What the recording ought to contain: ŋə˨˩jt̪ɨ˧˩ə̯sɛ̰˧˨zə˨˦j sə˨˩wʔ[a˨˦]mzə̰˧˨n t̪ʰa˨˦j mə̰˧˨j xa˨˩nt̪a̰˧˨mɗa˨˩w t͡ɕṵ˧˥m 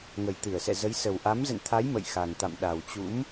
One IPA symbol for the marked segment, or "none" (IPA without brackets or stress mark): a˨˦